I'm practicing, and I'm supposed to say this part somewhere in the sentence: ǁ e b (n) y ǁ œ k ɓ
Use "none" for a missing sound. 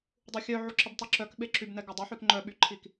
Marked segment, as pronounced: tˤ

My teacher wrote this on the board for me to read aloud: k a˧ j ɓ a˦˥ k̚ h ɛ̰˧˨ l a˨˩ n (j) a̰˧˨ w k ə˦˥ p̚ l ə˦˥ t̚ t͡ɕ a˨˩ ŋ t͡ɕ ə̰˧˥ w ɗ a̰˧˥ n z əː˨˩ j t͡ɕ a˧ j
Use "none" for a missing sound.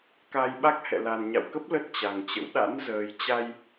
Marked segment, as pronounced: ɲ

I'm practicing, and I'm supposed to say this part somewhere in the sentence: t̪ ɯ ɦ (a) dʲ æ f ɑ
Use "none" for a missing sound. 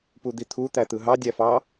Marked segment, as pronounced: ɑ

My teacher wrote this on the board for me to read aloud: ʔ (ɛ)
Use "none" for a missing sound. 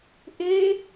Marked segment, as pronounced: e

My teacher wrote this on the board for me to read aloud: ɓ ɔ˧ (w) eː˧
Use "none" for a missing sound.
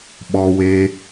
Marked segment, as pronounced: w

